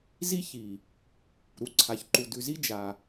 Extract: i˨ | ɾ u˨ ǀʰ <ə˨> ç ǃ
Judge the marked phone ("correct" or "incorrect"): incorrect